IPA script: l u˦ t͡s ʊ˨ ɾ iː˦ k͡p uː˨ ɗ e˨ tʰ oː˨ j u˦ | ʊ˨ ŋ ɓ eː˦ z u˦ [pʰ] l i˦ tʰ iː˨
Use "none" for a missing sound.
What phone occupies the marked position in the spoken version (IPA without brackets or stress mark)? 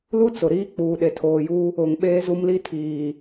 m